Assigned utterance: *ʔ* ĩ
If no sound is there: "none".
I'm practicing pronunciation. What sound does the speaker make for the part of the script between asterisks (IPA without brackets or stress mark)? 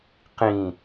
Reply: q